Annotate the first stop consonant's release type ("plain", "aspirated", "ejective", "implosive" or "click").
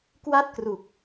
plain